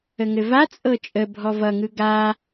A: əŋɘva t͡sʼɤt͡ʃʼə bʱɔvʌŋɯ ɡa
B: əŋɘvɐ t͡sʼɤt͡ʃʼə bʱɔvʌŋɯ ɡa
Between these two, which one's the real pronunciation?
A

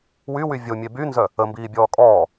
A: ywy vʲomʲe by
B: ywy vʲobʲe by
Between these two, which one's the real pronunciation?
A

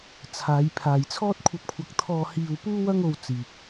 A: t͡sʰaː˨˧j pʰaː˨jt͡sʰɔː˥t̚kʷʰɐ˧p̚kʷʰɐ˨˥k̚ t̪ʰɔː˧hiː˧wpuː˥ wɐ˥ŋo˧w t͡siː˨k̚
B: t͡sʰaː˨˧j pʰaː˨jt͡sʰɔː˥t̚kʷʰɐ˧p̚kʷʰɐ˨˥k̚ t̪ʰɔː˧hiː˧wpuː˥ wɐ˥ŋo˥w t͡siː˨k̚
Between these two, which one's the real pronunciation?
A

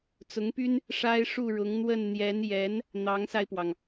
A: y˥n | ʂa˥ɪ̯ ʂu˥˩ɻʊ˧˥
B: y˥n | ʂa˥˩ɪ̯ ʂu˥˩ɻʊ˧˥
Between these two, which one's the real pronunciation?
A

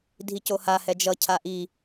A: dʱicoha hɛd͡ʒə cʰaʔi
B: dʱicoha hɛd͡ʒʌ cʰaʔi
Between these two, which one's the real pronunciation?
B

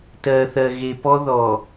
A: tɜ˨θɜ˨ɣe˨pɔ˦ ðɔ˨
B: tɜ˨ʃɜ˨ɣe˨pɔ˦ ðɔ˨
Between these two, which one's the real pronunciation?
A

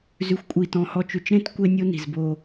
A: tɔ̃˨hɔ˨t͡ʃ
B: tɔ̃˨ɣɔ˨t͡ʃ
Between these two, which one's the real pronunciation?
A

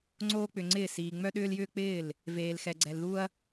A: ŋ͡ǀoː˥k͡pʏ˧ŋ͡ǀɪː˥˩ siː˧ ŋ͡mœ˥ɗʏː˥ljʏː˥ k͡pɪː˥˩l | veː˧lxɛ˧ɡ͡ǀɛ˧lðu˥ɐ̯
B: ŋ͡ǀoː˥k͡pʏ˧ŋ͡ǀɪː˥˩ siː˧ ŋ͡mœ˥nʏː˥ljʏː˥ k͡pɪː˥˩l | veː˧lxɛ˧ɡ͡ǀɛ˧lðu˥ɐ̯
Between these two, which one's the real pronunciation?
A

